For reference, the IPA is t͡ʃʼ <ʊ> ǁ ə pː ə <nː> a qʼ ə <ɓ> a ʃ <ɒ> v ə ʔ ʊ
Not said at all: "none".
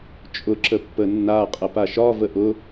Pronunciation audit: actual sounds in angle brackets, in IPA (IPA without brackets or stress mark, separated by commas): ʊ, nː, p, ɒ